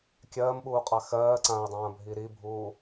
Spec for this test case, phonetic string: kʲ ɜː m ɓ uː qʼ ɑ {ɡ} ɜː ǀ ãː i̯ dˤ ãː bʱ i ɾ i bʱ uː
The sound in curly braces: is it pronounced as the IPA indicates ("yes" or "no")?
no